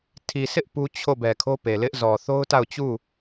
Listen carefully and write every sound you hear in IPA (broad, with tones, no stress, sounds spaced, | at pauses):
tʰ i˨ sʰ ɪ˦ ʔ p u˦ t͡ɕʰ o˦˨ b ɛ˨ kʰ o˦ p e˨ l ɪ˦ ʔ z ɔ˨ θ o˦ ʊ̯ t a˦˨ ʊ̯ t͡ɕ u˦˨